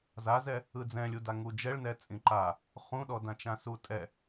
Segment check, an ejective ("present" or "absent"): present